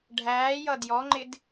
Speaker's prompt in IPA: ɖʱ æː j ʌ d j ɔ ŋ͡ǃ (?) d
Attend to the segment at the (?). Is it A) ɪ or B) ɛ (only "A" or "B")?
A